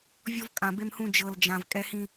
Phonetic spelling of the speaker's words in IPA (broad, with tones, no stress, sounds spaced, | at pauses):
vʲ ɔ˦ v kʼ ã˨ b e˦ m h ũ˦ d͡ʒ ɤ˨ l d͡ʒ ã˨ v kʼ ɛ˦ h ĩ˦